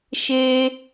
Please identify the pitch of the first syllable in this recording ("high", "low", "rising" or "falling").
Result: high